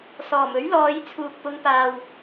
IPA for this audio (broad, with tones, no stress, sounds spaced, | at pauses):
s ɔː˨˩ m ɵ˨˥ ɥ l ɔː˨˧ j t͡sʰ uː˨ k̚ p ʊ˨˧ ŋ p aː˨ w